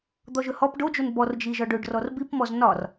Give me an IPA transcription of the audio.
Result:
d̪ ɔ ʒ ɵ h ɔ p ɖ o d͡ʒ o n b ɔ r d͡ʒ i ʒ ɒ ɖ ɵ ɖ r ɔ r b i p m ɔ z n ɒ r

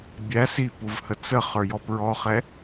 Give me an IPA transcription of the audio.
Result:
bʲ æ s i p u v h ə t͡s ə χ ə˞ j ɔ p ɹ ɔ χ ɛ

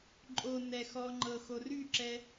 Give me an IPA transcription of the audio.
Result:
ǃʼ o n ɛ x ɔ ŋ͡ǃ ɤ x o r y ǁ ɛ

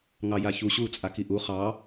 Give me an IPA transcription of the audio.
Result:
ŋ ɑ j a ç u ɕ u t͡sʼ a k i ʔ u χ ɑ

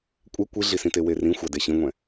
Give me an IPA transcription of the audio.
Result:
kʷʼ e kʷ i ɮ i s ĩ t e w e r ĩ xʷ a d e ɕ ĩ ŋʷ ɛ̃

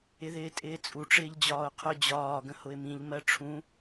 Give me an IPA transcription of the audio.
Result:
ɪ ð ɪː tʼ ɪː t͡sʼ u ʈ͡ʂ ɪː ʎ d͡ʑ ɒː ʊ̯ qʰ ʊ d͡ʑ ɒː ɡ ə̃ h ʊ ɪ̯ m ĩ ʎ m ɜ ʈ͡ʂʰ ũ

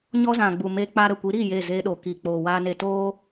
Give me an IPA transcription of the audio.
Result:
ɲ ɔ˦ z ã˨ ɡ͡b u˨ m e˧ k͡p a˧ ɾ ə˨ kʷ i˨˦ ɾ iː˦˨ j e˦˨ z e˧ ɗ o˨ k iː˨ k͡p oː˨ w aː˧ n e˧ t oː˦

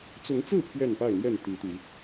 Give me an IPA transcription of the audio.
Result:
t͡s ʊ˨˦ ŋ t͡s ɹ̩˥˨ pʰ ɥ ɛ˥˨ n p a˥˨ ɪ̯ n̪ j ɛ˥˨ n t̪ i˨˦ t̪ i˨˦

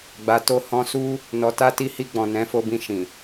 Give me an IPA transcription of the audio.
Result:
ɡ͡b a˨ t o˧ h ɔ̃˧ s u˦ | n ɔ˨ t a˧ t i˧ h i˧ ɡ͡b ɔ̃˨ n ɛ̃˨˦ f o˧ b ĩ˧ ʃ ĩ˨

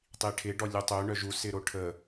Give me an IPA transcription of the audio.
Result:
tˤ i ʈʰ ɪ ɖ ɔ lʲ u tˤ ø ɳ œ ʒ u s ɪ ɾ o ʈʰ ə

